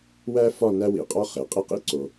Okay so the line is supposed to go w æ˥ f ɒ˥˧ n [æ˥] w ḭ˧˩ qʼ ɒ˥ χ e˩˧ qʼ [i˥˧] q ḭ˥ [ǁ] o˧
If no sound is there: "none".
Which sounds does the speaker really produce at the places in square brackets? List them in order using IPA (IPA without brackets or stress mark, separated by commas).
æ˥, i˥˧, ǀ